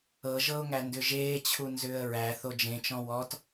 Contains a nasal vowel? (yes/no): yes